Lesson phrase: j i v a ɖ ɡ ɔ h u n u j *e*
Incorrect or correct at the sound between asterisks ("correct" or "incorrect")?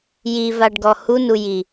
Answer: incorrect